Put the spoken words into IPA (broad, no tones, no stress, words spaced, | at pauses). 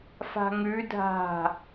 fa̤ŋʉ dʱa̤